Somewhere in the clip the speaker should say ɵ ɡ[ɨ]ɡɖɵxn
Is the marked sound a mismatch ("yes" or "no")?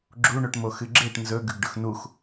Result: yes